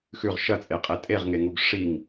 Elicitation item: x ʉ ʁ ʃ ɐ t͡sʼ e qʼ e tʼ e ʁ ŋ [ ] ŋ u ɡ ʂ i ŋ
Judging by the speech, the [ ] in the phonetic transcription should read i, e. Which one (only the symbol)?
e